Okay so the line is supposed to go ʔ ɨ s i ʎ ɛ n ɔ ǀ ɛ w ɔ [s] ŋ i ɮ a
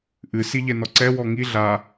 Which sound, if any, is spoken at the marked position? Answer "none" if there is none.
none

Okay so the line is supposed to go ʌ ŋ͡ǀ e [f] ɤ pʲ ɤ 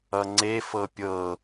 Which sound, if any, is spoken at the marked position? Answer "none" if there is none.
f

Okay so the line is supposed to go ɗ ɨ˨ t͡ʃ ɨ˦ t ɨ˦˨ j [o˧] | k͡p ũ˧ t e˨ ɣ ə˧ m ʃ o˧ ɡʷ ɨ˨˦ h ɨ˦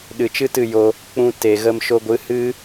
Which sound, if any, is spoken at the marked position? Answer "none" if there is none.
o˧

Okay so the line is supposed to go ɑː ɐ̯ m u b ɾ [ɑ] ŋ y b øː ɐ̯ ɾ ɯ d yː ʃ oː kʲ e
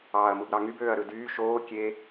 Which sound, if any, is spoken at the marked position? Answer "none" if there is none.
ɑ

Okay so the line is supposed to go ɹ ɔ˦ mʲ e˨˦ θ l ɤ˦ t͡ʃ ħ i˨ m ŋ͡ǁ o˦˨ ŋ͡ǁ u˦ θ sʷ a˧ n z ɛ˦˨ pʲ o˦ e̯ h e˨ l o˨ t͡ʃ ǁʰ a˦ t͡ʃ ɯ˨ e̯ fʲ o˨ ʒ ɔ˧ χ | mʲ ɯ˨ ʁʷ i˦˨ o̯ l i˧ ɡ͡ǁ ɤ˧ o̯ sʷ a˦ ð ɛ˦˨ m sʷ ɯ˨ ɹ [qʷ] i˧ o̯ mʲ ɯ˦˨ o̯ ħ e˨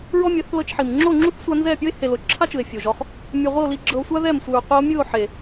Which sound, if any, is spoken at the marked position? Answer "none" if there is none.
qʷ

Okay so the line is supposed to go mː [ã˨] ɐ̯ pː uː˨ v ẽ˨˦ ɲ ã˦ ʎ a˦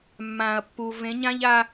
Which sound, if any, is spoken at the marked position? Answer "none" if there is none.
ãː˨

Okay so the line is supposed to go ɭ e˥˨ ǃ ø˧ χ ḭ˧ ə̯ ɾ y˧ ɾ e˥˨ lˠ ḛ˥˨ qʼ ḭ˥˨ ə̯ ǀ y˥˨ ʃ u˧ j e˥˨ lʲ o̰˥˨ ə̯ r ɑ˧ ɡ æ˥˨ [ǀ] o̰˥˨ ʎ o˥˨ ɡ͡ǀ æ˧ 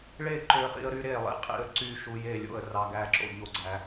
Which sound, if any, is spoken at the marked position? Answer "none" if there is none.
ǁ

